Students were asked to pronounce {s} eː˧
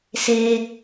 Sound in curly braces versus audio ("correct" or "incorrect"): correct